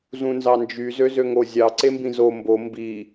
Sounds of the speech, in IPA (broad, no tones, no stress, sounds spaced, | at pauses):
z ũ n z ɑ n d͡ʒ y z ø z ø ŋ o zʲ ɑ ǀ e m b ĩ z o m b o m b i